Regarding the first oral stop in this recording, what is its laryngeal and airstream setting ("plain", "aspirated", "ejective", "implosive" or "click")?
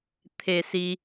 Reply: aspirated